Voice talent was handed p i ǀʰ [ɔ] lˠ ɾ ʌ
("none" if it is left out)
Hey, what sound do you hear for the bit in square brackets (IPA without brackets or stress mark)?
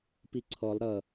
ɔ